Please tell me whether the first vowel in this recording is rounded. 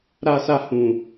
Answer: no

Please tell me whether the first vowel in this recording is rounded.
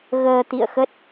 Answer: no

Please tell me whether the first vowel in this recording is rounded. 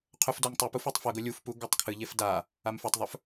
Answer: yes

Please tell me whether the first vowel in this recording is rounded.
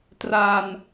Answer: no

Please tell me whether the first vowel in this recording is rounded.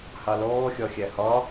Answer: no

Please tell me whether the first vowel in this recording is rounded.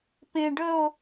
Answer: no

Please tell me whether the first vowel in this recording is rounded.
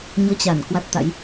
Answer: yes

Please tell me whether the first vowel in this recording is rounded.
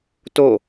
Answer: yes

